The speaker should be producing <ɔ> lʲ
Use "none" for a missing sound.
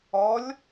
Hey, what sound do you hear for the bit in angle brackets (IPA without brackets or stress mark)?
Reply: ɔ